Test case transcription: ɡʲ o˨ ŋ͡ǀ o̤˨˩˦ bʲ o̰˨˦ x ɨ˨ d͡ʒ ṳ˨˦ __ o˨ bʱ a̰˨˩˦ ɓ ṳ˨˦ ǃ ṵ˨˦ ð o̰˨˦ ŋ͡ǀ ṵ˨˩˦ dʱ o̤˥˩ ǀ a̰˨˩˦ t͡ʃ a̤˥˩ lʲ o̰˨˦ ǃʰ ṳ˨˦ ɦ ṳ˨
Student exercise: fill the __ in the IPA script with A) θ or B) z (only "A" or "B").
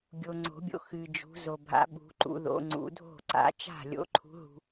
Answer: B